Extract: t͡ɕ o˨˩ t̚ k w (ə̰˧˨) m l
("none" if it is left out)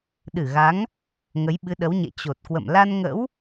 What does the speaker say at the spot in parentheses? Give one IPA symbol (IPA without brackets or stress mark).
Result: ə̰˧˨